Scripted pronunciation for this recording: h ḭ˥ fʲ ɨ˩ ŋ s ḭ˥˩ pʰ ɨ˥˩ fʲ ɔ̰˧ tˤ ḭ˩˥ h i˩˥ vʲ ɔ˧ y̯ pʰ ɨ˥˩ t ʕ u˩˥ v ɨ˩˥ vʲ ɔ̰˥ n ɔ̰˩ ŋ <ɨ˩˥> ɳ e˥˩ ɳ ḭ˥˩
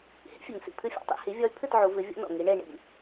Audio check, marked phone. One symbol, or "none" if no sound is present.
i˩˥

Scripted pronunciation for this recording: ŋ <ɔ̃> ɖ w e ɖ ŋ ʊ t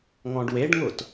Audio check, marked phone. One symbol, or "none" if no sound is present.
ɔ̃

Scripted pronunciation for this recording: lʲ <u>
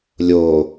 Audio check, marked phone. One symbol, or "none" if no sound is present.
o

